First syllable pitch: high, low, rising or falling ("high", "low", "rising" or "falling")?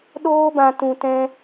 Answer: high